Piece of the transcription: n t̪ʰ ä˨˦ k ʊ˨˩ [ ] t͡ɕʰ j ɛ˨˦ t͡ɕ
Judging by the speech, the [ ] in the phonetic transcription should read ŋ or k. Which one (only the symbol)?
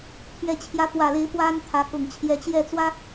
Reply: ŋ